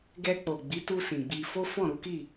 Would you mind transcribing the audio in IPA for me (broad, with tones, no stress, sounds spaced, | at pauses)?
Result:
ɡ ɛ˧ k͡p o˨ ɡ͡b i˨˦ t u˧ s ĩ˨ ɡ͡b i˧ f o˦ f ɔ̃˦˨ ɾ u˨˦ k i˦˨